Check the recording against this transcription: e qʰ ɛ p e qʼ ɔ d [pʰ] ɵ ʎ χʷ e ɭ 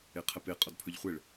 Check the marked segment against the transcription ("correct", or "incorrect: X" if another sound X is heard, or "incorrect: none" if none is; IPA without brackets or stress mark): correct